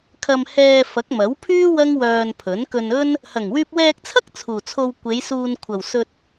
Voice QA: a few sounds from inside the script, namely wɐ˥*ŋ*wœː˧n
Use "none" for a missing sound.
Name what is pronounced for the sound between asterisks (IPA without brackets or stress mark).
ŋ